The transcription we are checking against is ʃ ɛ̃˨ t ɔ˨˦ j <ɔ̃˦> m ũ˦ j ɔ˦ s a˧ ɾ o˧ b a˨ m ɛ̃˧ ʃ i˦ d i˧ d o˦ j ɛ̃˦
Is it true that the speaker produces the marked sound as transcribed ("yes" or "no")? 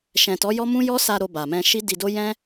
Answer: no